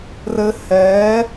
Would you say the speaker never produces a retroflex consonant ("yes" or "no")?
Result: yes